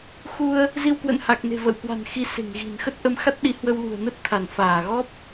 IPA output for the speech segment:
x u˧ ə̯ | z i˧ w k w ə̰˧˨ n h a˨˩ k̚ n e̤˨˩ v ə̰˧˨ w k w a̤˨˩ n x i˨˦ s e̤˨˩ ŋ ɣ i̤˨˩ n x ə˦˥ t̚ ʔ ə˧ m x a˦˥ t̚ ɗ i˨˦ h w ə˧ w l ṳ˨˩ ə̯ n ə˦˥ t̚ t̪ʰ a˧˩ n f aː˧˩ ɣ ɔ˦˥ p̚

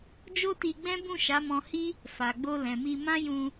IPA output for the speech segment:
d͡ʒ o˦ t i˧ ɡ͡b ɛ̃˦ b ũ˦˨ ʃ a˨˦ m ɔ̃˧ h i˦ | f a˨ ɡ͡b o˧ l ɛ̃˨ m i˧ m ã˦ j ũ˧

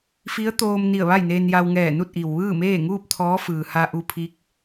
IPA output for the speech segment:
f i˧˥ ə̯ t̪ oː˧ m n i˧˩ ə̯ ʋ a˥˨ j n eː˧ n j a˧ w ŋ ɛː˧˩ n u˥˨ t̚ ʔ i˩ w ʋ ɯː˥˨ m eː˥˨ ŋ uː˥˨ p̚ t̪ʰ ɔː˧˥ f ɯː˩ h a˧ ʔ u˧ pʰ i˧˥ k̚

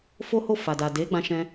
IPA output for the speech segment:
f o˦ h o˦˨ f a˨ d a˨ d e˨˦ ɡ͡b ã˦ ʃ ɛ̃˦

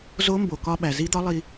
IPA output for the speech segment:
z o˧˥ m b o˩ k ɒ˧ ɓ æ˩ z i˧˥ d̪ ɒ˧˥ lˠ i˧

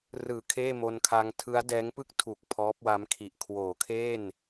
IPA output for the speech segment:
r ɯː˨˩ kʰ eː˥˩ m o˧ n kʰ a˧ ŋ tʰ ɯ˦˥ a̯ d ɛː˦˥ ŋ p ɯ˥˩ k̚ tʰ u˨˩ k̚ pʰ ɔː˦˥ p̚ w a˦˥ m kʰ i˨˩ ʔ kʰ w oː˩˦ kʰ eː˥˩ n

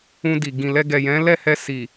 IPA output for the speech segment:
ũ˧ d i˨ ɡ ĩ˨ l ɛ˧ ɡ ɛ˨ j ɛ̃˨˦ l ɛ˦˨ h ɛ˧ s i˨

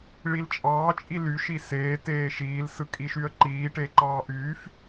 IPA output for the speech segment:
ɭ i l t͡ʃʼ ɑː t͡ʃʼ i l y ʃ i s eː t eː ʃ iː l s ɯ kʼ i ʃ y ə̯ ǃ iː ʈ e ǃ ɑː ʔ yː f

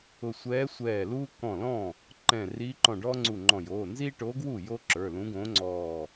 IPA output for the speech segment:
ʊ˧˩ sʷ ɛː˧˥ sʷ ɛː˧˩ l uː˥ k ɔ̃˧˩ l ɔ̃˥˩ | ǃ ɛ̃˧˩ r iː˧˥ ǃ ɔ̃˧˩ ɖ ɔː˥ ŋ͡ǀ u˧˩ ŋ͡ǃ ɔ̃˧˩ j oː˩˧˩ n z iː˥ ʈ oː˧˥ ɡ w u˥˩ j o˥ ǁ ə˞˩˧˩ l ũ˧˥ ɡ õ˧˥ ŋ͡ǀ ɔː˧˩

